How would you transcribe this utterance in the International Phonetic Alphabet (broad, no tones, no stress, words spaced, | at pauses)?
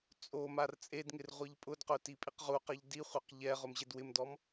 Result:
t͡sʼo mart͡sʼedŋɪr ʁʷiʎpʼʊdqʊ tipʼiqʁuqɛʎ diχʷɛq ʎɛ ʁʊmʑedwɪmdɔm